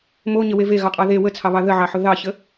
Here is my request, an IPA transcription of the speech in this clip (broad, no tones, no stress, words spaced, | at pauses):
moɲəwe veɣɑqʼɑ ðe wət͡sʰɑβɑ ðəʕɑħʊ ðɑçə